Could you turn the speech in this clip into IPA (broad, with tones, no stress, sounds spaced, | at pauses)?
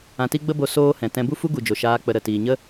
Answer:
ã˧ t i˦ ɡ͡b ə˦ b o˧ s oː˦ h ɛ̃˨ t ɛ̃˧ b u˦ f u˦ ɡ u˨ d͡ʒ o˨ ʃ aː˧ k͡p ə˧ ɾ ə˨ t iː˨ ɲ ə˦